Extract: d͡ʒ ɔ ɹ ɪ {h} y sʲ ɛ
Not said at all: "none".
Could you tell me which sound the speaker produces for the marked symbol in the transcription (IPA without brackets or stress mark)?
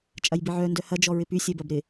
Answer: p